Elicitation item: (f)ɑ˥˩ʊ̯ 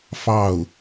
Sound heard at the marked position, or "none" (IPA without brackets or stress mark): f